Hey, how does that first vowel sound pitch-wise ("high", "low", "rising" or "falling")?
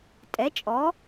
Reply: rising